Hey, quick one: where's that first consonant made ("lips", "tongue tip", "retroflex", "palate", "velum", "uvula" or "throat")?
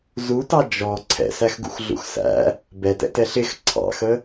tongue tip